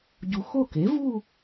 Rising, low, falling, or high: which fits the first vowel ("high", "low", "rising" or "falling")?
low